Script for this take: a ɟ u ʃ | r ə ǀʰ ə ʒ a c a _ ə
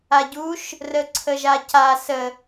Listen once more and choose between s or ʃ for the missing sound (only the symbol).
s